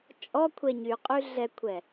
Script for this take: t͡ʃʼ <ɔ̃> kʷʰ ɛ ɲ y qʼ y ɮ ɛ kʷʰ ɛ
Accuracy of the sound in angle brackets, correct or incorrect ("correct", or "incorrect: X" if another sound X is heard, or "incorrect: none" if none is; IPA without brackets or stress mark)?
incorrect: ɔ